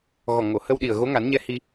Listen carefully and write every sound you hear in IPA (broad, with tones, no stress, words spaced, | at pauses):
ɣɔ˨˩ŋo˨˩˨hə˧wɗi˨˩ə̯ ɣo˧˥ŋa˨˩˦nɲɛ˧˥ hi˧